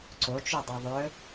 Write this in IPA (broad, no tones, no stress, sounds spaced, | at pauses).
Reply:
ǀ o t͡ʃ u dˤ ɐ ðˤ ɵ